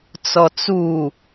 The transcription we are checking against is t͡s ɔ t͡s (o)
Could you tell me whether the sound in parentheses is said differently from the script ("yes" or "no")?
yes